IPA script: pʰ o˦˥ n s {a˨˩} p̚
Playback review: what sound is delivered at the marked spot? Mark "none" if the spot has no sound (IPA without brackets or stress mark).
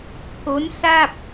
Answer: a˥˩